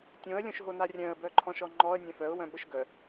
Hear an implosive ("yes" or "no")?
yes